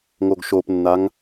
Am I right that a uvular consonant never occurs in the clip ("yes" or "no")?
yes